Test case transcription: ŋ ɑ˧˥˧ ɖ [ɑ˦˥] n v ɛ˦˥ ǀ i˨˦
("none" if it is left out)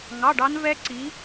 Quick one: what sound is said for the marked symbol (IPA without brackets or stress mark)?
ɑ˦˥